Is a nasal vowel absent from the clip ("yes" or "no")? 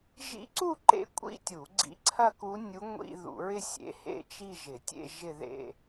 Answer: yes